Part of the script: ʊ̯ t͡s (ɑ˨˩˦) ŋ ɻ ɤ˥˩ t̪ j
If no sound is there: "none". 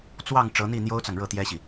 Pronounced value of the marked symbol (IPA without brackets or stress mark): ɑ˨